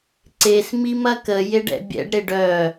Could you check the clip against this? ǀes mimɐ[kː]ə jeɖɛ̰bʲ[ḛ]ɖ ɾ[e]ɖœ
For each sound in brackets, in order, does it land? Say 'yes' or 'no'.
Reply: no, no, yes

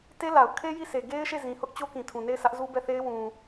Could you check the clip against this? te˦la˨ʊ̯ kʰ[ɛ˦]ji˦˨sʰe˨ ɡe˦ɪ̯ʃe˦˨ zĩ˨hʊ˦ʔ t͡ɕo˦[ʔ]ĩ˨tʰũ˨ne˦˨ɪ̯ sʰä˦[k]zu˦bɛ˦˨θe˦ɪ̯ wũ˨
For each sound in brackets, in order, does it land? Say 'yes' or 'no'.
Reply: no, no, no

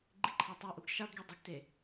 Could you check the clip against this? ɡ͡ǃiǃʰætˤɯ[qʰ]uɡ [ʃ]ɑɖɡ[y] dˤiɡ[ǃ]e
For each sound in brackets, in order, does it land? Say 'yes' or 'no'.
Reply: no, yes, yes, no

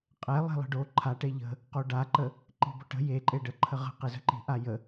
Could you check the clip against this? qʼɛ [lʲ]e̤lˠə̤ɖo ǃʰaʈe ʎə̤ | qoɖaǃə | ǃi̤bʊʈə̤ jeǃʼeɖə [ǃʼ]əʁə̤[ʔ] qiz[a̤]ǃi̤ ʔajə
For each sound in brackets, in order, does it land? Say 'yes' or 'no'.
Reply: no, no, no, no

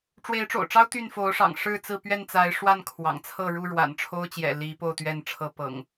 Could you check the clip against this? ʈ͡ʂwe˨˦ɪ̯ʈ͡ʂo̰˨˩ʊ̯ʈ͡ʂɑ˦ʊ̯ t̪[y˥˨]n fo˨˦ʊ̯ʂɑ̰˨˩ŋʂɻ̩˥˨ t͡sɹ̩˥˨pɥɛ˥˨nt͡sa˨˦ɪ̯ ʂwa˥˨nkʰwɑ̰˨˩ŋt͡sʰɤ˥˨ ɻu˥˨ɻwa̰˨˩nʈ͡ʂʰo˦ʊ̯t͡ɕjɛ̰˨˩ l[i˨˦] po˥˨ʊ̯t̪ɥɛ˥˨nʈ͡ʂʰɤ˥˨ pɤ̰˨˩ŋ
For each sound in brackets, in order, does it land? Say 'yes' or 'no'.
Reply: yes, yes

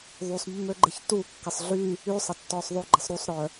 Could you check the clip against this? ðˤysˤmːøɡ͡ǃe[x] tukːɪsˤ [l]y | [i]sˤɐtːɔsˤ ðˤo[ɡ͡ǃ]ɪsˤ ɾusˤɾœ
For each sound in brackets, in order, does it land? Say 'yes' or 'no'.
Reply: no, no, no, yes

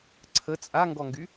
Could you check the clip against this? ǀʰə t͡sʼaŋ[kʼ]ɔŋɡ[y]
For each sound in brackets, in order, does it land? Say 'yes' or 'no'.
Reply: no, yes

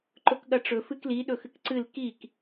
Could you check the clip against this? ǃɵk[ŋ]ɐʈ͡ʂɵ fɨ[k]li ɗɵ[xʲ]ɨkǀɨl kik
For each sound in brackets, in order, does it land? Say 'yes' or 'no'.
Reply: no, yes, no

